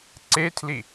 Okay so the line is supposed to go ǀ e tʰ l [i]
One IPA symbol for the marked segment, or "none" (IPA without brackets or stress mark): i